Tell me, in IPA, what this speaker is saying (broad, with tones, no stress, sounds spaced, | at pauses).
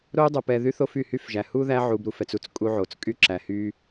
ɾ o˥ y̯ dˤ o˨ p ɛ˨ ð y˥ θ o˦ f y˩ h y˦ f ʒ æ˩ h u˥ ð æ˥ ʕ u˨ b ɾ u˩ f ɛ˨ t͡s u˥ t͡s kʼ u˦ ʕ o˩ t͡s kʼ y˥ ǁ æ˩ h y˥